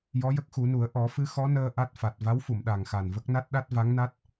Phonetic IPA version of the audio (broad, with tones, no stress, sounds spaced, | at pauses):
j ɔ˧˥ j ə˦˥ k̚ x u˨˩˦ n u˨˩˦ ə̯ ʔ ɔ˨˩˦ f ɨ˧˥ x ɔ˧˥ n əː˧ ʔ a˦˥ t̚ f a˨˩ t̚ v a˧˥ w f u˨˩˨ m ɗ a˨˩ ŋ x a˨˩ n v ə˦˥ k̚ n a˦˥ t̚ ɗ a˦˥ t̚ v a˧˥ ŋ n a˦˥ t̚